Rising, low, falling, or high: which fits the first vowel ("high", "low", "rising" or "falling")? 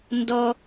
low